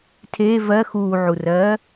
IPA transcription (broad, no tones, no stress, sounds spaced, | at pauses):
tʰ eː v ɜ x uː ʕ u r ɜː